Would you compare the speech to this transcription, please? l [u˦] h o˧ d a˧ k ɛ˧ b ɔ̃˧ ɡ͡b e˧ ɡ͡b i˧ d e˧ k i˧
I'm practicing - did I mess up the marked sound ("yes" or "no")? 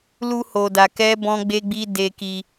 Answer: no